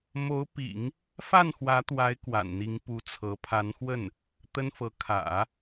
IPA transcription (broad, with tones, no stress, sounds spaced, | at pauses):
m o˧˥ ʊ̯ p ḭ˨˩˦ ŋ | f a˥˩ n x w ä˧˥ t̪ w a˧˥ ɪ̯ k w a̰˨˩ n n̪ i˧˥ ŋ p u˧˥ t͡sʰ ɤ˧˥ pʰ a˧˥ n x w ə˥˩ n | t̪ ə˥ n f ɤ˧˥ kʰ ä̰˨˩˦